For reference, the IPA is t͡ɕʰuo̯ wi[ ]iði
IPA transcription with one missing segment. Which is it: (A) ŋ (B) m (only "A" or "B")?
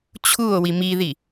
B